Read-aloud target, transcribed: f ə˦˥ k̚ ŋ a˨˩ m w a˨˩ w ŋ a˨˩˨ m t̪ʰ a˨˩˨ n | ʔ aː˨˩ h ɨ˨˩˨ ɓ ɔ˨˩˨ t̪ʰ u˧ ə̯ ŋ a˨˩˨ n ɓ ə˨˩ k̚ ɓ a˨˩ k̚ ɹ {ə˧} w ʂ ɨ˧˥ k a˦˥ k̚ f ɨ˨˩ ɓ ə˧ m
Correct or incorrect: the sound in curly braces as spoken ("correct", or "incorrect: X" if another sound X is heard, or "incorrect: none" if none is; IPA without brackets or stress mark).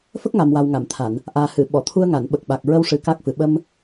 correct